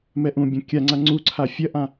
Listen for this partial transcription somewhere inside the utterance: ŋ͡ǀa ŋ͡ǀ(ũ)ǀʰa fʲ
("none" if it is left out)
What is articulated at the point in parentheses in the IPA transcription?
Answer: u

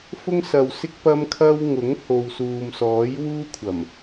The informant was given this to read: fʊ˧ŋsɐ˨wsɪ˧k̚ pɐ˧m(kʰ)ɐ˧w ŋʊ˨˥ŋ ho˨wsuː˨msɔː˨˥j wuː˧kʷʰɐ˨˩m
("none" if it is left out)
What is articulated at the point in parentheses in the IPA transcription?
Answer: kʰ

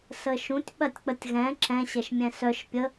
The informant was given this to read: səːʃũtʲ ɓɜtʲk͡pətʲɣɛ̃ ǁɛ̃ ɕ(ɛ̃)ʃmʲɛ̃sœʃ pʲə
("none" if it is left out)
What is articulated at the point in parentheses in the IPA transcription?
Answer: ɛ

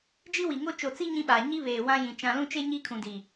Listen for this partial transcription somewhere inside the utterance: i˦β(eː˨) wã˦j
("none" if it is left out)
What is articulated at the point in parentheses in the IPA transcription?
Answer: eː˨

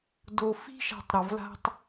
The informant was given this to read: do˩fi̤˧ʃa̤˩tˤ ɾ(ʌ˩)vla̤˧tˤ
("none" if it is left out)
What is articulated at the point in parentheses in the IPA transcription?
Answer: ʌ˩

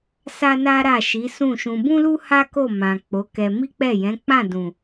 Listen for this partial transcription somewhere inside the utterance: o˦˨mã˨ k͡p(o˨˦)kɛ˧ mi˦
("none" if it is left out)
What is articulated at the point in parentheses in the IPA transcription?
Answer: o˨˦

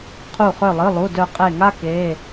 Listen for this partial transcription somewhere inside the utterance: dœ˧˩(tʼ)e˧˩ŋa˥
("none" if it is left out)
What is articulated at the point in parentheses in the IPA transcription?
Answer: qʼ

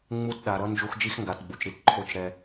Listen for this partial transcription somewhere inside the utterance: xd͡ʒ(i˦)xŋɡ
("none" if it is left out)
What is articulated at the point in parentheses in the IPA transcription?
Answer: i˦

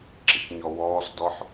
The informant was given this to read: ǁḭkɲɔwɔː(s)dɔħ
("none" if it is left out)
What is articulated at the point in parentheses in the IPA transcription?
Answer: s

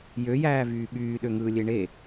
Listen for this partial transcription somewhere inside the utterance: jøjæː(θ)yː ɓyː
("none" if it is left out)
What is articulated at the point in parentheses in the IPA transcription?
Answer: v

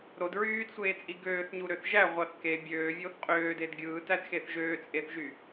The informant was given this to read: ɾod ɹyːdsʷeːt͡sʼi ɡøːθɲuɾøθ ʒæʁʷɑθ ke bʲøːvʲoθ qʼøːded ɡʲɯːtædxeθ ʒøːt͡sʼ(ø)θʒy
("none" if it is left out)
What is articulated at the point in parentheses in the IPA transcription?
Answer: e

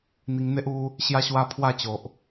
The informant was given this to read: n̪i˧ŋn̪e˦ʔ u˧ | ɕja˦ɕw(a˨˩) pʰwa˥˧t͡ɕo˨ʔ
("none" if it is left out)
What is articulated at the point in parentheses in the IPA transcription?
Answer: a˦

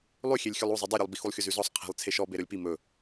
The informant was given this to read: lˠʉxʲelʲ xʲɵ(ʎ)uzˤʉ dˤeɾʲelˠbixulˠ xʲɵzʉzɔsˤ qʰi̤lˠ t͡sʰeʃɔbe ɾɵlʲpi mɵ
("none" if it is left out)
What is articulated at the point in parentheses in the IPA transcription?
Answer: lˠ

